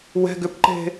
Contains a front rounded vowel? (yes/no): yes